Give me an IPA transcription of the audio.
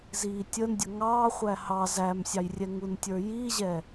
z iː tʲ ə n dʲ ə ŋ ɑː χʷ æ h ɑ z æ m sʲ ɑ j rʲ ɛ ŋ u n tʲ ə˞ j iː ʑ ɛ

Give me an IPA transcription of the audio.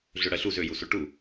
ɮ ø ɽ ɜ ɬ u z ø j u s o ʈ u

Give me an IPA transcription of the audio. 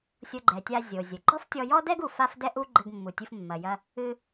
sʲ o˧ ɡ͡ǃ ɛ˩ tʲ a˧ zʲ o˩ zʲ ɘ˩ ɡ͡ǃ ɔ˥ f tʲ ɔ˧ j ɔ˥ d ɛ˥ ɡ u˩ f a˥ f d ɛ˥ ʔ u˥ ɡ͡ǃ ɘ˧ ɡ mː u˩ tʲ ɨ˧ f mː ɐ˩ j ɐ˧ | ɨ˧

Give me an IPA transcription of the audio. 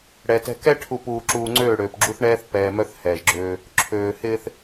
ɽ ɛ˨ t ɛ̤˨ k ɛ˦ ʈʰ u˨ p uː˨ ǁ uː˨ ŋ͡ǀ øː˦˨ ɽ øː˨ p ɡ͡ǁ u˦ θ ɳ ɛː˦ θ p ɛː˨ m œ˦ θ h ɛː˨ ʒ ɡ͡ǁ øː˦ | ǁʰ øː˨ h ɪː˦ θ

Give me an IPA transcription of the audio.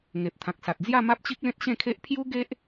ŋ e˨ p̚ t̪ʰ ã˨ k̚ s a˨ t̚ d͡z j a˥˧ m a˦ p̚ t͡ɕ i˦ k̚ l ẽ˦ t̚ ɕ ẽ˥˧ kʰ e˦ ʔ pʰ j u˦ ɡ e˦ ʔ

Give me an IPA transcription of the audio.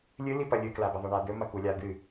lʲ ɨ l i p ɐ lʲ ɨ k l a b ɐ ðˤ ɐ ɳ a d̪ ɵ m ɐ k u lʲ a d̪ ɨ

